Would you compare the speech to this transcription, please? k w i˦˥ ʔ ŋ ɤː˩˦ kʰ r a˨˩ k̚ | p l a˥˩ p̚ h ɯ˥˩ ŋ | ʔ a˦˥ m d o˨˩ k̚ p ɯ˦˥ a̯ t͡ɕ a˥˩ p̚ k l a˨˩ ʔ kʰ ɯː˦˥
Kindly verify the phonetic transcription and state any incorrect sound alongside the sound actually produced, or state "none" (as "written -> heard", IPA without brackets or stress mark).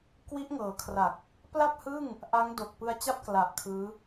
m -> ŋ